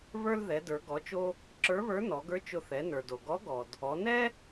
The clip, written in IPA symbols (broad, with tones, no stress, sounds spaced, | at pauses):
β ə˞˥ l ð ɛ˩˧ d ə˞˩˧ ɡ ɔ˩˧ t͡ʃ o˧ | ǁ ə˞˧˥ β ə˞˧˥ n ɔ˩˧ ɡ ə˞˧˥ t͡ʃ ʊ˧ θ ɛ˩˧ n ə˞˩ d o˩ ɡ ɔ˧˥ ɡ ɔ˩ d | ɔ˩˧ n ɛ˥